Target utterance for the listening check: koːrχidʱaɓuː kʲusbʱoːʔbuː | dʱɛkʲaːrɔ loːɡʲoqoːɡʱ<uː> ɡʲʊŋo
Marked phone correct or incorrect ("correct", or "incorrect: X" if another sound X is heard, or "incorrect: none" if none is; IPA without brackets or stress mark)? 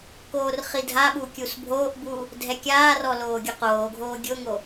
incorrect: oː